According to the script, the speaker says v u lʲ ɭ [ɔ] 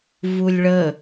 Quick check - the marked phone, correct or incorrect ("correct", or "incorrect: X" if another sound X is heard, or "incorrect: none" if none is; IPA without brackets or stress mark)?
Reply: incorrect: ə